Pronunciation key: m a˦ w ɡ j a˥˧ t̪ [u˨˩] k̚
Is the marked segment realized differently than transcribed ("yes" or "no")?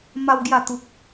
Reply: yes